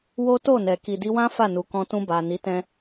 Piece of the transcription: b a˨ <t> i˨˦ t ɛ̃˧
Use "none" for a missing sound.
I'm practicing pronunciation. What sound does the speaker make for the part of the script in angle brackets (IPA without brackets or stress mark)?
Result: n